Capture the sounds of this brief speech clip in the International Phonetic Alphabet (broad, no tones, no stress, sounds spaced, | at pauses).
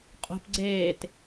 qʼ o̤ p ɡ͡ǀ eː t